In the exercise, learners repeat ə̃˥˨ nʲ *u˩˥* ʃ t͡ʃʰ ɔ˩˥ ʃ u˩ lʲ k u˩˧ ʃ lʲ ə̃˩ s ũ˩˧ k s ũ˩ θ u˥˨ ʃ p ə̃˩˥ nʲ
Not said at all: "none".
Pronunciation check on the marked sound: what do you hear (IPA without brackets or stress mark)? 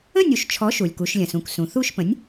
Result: u˩˥